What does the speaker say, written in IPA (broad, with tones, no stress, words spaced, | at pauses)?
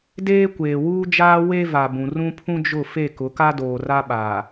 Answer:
deː˦kʷeː˨wuː˦d͡ʒaː˦ we˦va˨ bũ˨ rũ˦pʰũ˦d͡ʒʊ˦˨ fe˦˨kʊ˨˦ka˦ doː˨ra˦ɓaː˨